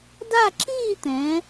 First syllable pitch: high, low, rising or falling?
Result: falling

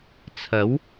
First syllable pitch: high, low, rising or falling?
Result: rising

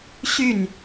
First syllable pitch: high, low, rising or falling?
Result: falling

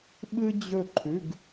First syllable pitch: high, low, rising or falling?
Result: high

